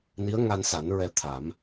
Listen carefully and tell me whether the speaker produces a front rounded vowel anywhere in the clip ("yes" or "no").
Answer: no